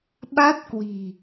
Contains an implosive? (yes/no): yes